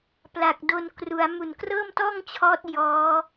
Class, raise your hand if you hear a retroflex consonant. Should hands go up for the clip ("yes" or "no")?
no